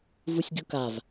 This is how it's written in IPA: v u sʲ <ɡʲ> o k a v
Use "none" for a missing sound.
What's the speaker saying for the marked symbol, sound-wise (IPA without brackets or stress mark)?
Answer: ɡʲ